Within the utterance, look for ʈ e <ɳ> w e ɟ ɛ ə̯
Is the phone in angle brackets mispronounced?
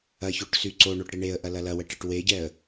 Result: yes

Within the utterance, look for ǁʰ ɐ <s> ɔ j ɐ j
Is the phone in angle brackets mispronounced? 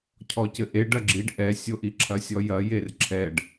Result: yes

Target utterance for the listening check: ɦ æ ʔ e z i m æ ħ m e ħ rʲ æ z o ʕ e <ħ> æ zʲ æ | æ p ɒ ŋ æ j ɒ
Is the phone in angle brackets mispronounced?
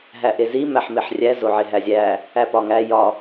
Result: yes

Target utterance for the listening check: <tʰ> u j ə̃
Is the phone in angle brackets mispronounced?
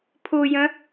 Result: yes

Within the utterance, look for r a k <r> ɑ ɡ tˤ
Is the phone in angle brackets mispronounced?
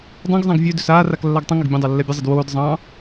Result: yes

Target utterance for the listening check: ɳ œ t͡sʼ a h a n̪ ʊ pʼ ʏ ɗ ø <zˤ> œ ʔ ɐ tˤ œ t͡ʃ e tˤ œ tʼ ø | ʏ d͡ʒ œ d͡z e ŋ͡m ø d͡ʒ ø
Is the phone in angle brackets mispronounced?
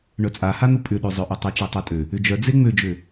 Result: no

